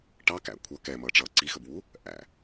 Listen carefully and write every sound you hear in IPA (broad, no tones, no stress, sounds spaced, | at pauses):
ʈ ɑ k æ̰ kʷʰ ʌ k ɛ m ʌː ʈ͡ʂ ʌː ǀ i x ə b w u | ʔ æ̰